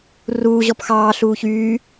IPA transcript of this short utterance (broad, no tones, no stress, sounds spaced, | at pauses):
r uː ʑ ɔ p x ɑː ɬ uː ç yː